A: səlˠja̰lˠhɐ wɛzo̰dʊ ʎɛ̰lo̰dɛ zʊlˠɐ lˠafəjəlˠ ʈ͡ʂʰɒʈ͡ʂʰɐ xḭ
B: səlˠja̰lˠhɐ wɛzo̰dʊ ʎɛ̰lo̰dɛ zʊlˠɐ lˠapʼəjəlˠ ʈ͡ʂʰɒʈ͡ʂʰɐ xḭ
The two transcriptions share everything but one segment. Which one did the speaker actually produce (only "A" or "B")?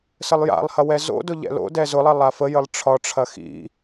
A